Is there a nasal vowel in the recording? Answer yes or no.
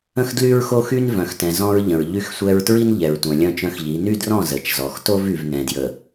yes